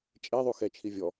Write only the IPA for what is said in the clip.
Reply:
t͡ʃʼeðˤu xɛt͡ʃʰi vʲɔ

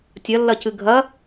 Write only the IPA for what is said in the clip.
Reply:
tʲɐlːɐcɨ ɡʱɐ

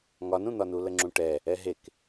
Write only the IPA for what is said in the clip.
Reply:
ŋɒnũn̪ɒnu ləŋ͡ǁũʈɛ | ɛɦek

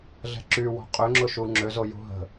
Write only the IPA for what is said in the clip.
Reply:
ɮɛ̤ǁywɔ̤ qʼøŋ͡ǁʊʃu ŋ͡ǁøzojṳ ɦə̤

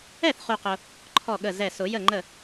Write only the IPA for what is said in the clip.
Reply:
ɛ˥˩θχu˨qʊ˨ | ǃʰɔ˥˩ɠə˥˩zɛ˥˩ sʊ˨˩˦jə˥˩ŋ͡ǃə˥˩

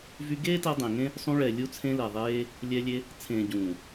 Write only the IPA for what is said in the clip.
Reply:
vy˧ɡeː˦tɛ˧ dˤẽ˨ŋẽ˦ | sˤũ˧ɭɛ˨ lʲu˧t͡sʰẽ˧lɛ˨ðˤeː˧ | lʲɛ˧lʲe˧ | t͡sʰẽː˨ ɟũː˨

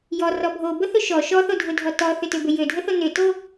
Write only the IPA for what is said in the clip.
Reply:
jɔrɔ bʱobəθʏ ʃɔ ʃɔθodʱʊdʱɔ tɔθʏtøbʏ jødʱəθo nʏto

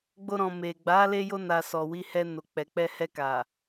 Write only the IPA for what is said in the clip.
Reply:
ɡ͡bo˧ɾɔ̃˨ me˨ ɡ͡ba˨˦le˧jo˧ na˨sɔ˨ wi˧hɛ˧no˨ k͡pɛ˨k͡pɛ˧hɛ˧ka˨

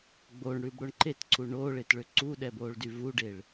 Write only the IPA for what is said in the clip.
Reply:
ɡ͡boɳɽʉbɽoɳ ǃʰetǀʰu ɳoːɭetɭø ǀuɗɛboːɭdy vuɖeɭ

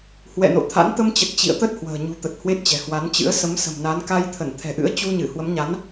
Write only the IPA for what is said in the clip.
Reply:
hwɛ̰˧˨no̰˧˨t̪ʰa̰˧˥n t̪ə˧mt͡ɕə˨˩t̚ t͡ɕḭ˧˨ə̯t̪ə˦˥t̚ hwə̤ː˨˩ ɲṳ˨˩t̪ə˨˩t̚ hwe˦˥t̚t͡ɕɛ̤˨˩ hwa˨˦nt͡ɕɨ̰˧˥ə̯ sə˨˦m sə̤˨˩mna˨˦n ka˧j t̪ʰə˧˩n t̪ʰɛ̤˨˩ʔɨ̰˧˥ə̯ t͡ɕu˧ɲɨ˧˩ hwə˨˦mɲa˨˦n

